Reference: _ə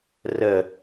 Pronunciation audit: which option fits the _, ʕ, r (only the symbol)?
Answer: r